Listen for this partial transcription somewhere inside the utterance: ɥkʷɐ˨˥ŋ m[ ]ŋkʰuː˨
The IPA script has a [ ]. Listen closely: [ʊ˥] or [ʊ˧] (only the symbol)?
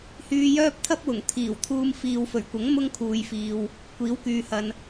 ʊ˥